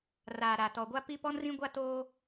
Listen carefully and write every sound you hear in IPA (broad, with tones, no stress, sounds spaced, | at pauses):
r aː˨ ɾ a˨ t ɔ˨ ɡʷ a˦ p i˦ p ɔ˦ n r ĩ˦ ɡʷ a˦ t oː˦